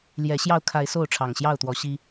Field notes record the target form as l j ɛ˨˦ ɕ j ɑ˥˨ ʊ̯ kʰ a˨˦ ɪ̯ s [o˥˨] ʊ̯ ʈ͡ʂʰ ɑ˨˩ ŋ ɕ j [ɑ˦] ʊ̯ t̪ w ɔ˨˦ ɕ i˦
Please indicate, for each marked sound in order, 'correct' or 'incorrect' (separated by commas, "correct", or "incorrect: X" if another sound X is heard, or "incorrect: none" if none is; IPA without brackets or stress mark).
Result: correct, incorrect: ɑ˥˨